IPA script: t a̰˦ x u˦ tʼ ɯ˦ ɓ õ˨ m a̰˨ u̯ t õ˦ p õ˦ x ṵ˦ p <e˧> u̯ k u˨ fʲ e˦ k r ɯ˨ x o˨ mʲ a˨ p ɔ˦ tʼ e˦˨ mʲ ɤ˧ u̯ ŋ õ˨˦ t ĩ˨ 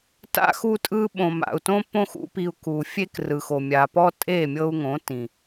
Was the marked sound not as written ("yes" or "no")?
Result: yes